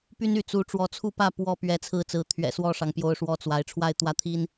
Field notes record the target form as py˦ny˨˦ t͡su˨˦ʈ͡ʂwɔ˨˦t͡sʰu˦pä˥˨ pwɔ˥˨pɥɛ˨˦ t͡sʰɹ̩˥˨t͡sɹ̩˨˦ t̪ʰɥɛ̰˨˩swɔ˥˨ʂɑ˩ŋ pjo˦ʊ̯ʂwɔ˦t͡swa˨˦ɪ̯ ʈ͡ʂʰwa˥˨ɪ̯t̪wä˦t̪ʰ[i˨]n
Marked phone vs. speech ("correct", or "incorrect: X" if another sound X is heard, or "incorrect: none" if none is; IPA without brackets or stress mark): incorrect: i˦